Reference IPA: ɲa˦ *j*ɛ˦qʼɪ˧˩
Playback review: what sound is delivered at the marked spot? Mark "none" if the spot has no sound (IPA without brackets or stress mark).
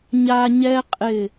ɲ